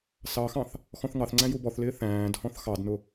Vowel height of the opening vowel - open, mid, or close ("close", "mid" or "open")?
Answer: open